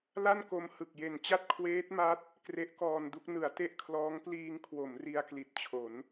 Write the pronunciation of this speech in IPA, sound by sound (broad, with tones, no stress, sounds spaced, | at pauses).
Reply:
l a˥˩ n k o˧ m h ɯ˨˩ k̚ j e˨˩ n t͡ɕ a˥˩ t̚ kʰ w eː˦˥ t̚ m a˦˥ t̚ | k r e˦˥ ʔ k ɔː˧ n d u˥˩ k̚ n ɯ˩˦ a̯ t e˥˩ ʔ kʰ l ɔː˦˥ ŋ p l iː˧ ŋ kʰ w o˩˦ m r i˧ a̯ k l i˨˩ t̚ t͡ɕʰ o˩˦ n